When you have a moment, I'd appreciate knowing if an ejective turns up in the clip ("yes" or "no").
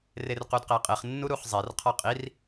yes